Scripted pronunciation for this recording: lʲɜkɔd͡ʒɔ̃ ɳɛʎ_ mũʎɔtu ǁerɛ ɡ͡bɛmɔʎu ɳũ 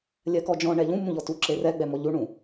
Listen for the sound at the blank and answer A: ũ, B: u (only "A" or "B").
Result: A